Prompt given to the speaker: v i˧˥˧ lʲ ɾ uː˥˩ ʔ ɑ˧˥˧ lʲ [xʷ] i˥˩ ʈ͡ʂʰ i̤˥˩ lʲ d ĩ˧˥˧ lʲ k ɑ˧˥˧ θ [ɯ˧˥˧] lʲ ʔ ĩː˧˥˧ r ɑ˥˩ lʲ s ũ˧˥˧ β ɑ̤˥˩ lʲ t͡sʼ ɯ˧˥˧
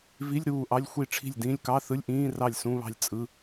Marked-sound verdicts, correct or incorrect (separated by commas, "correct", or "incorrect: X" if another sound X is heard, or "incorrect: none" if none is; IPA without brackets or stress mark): correct, correct